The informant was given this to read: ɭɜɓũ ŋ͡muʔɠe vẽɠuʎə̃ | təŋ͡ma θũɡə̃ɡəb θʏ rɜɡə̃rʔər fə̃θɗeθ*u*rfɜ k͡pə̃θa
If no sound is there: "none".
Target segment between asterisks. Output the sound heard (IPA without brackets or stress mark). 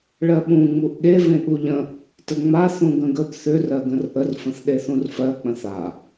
ũ